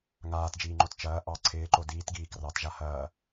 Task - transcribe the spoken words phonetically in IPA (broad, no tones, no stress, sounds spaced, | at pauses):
ŋ aː t d͡ʒ iː ŋ͡ǃ o t t͡ʃ ɐː ʔ ɑ ǀʰ ɪː ǃ o d iː t ɡ iː k r ɑ t ʒ a h ɐː